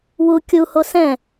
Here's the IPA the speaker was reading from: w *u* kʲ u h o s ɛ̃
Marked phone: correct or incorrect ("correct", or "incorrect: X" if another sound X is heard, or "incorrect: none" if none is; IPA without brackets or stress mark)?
correct